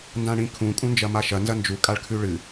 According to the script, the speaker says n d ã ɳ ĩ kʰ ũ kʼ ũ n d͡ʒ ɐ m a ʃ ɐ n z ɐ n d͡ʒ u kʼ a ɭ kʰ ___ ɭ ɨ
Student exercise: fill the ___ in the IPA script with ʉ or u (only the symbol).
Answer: ʉ